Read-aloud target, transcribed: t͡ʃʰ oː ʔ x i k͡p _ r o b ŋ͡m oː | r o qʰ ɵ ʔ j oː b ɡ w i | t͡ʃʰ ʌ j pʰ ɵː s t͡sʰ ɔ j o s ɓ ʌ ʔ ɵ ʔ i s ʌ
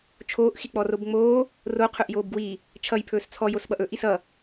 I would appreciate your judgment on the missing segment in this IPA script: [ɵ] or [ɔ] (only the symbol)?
ɔ